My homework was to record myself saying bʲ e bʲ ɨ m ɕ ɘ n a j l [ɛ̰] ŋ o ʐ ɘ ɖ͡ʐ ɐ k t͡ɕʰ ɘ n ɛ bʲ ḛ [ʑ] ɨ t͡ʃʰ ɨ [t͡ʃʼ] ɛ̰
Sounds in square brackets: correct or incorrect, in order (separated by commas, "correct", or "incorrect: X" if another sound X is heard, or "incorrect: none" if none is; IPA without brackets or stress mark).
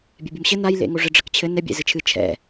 incorrect: ḛ, incorrect: z, incorrect: t͡ʃʰ